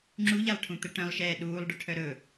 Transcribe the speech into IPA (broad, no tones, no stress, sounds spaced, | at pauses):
ŋ͡ǁ u ʎ a lˠ ʈʰ ũ t̪ ɛ ʈ œ̃ lˠ ʃ ɛː ɗ uː lˠ ɖ œ ʈʰ œ ɾ ɵ